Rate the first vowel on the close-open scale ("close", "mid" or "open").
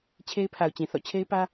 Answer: mid